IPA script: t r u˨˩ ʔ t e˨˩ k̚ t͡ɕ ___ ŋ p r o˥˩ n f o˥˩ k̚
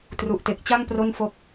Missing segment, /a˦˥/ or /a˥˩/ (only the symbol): a˥˩